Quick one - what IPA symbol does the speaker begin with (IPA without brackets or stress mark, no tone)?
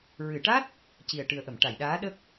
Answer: ɹ